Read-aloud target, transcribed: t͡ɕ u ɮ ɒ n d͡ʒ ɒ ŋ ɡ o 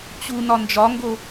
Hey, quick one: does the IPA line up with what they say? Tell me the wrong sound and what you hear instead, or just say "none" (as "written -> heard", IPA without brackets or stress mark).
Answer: ɮ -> n